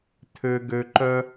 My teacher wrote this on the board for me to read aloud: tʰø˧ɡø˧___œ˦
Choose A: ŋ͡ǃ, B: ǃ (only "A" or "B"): B